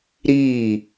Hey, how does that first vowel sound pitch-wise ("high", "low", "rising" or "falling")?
falling